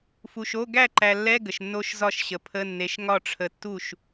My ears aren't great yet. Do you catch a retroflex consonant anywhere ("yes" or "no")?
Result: yes